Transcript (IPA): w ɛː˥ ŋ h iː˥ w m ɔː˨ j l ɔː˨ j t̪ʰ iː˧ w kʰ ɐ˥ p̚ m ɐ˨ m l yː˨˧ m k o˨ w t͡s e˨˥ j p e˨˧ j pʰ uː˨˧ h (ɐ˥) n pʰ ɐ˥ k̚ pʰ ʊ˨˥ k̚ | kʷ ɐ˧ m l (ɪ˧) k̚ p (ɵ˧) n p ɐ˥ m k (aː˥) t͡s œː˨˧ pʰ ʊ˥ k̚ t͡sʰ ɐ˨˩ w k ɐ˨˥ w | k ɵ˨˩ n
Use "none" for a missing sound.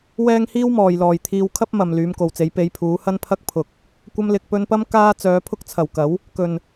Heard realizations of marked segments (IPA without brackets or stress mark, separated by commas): ɐ˥, ɪ˨, ɵ˧, aː˥